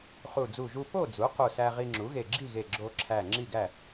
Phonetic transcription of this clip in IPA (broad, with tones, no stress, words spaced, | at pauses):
χu˧˩d͡zu˧˩ʒu˧ po˥˨d͡zu˩˥ qu˧˩sæ˧ʁi˧ ŋ͡ǁu˩˥ɣe˧˩ɡ͡ǁi˥˨ɣe˧˩ ɡ͡ǁo˧ǁʰæ˧˩ ŋ͡ǁi˥˨ɡæ˥˨